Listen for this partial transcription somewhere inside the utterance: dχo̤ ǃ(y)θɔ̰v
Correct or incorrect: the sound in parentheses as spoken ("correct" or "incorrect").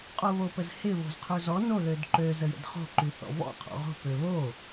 correct